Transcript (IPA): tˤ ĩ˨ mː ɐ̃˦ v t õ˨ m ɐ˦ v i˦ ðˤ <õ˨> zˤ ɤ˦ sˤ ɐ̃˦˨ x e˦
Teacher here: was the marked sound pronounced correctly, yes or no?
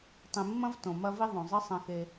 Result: yes